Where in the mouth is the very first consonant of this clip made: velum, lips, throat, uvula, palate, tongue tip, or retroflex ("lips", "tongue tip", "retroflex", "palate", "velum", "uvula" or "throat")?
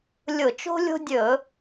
tongue tip